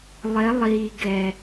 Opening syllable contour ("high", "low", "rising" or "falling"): rising